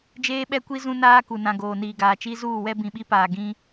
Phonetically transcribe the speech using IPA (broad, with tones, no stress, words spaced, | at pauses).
d͡ʒeː˦ɓɛ˦kʷi˦ zũ˦naː˦ ku˨ nã˨ ɡoː˨niː˨ɡaː˨t͡ʃi˦ zuː˦˨wɛ˦ bĩ˨ɓi˦paː˨ ɡĩ˦